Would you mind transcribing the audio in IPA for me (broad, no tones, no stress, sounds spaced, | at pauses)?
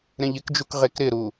ɾ ẽ ʎ ɪ k d͡ʒ u k ʁ e k ɾ ɪ ɾ u